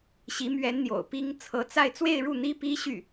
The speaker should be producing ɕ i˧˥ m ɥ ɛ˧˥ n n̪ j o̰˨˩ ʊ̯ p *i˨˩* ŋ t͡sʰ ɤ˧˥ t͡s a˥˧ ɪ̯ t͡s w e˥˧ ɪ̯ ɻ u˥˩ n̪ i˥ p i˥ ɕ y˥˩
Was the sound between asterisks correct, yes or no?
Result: no